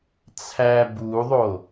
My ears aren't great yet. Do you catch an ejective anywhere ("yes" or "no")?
no